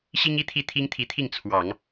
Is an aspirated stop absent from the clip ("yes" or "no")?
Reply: no